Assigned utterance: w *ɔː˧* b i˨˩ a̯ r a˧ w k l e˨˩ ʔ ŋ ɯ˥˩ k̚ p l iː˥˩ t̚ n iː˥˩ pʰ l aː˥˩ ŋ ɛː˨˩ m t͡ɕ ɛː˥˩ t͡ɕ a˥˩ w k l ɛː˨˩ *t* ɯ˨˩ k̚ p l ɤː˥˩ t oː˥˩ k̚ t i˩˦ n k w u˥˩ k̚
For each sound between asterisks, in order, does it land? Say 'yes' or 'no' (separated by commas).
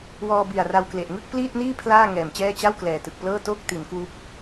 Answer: yes, yes